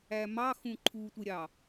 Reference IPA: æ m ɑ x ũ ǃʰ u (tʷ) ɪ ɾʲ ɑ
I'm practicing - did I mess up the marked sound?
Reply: no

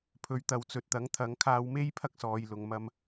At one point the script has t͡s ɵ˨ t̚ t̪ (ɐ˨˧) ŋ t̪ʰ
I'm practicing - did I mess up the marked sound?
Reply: yes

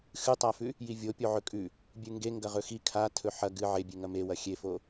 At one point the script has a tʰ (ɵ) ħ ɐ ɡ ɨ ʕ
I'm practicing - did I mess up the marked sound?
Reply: no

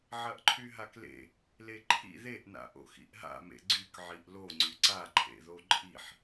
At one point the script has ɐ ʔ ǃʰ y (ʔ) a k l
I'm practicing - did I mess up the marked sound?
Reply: yes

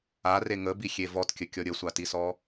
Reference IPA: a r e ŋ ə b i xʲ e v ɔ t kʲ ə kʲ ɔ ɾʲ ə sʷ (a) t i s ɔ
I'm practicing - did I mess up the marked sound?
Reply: no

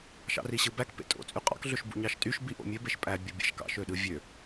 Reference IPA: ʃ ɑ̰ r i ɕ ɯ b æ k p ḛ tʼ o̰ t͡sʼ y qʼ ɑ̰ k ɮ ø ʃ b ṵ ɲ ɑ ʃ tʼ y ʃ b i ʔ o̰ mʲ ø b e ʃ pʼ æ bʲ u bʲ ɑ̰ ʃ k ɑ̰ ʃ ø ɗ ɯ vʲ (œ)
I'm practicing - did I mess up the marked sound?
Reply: yes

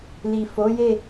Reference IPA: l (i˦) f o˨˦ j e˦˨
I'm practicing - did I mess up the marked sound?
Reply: yes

